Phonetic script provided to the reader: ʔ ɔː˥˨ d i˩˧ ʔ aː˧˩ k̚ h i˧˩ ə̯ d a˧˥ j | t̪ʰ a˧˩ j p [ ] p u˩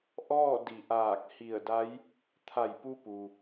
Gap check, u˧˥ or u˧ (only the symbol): u˧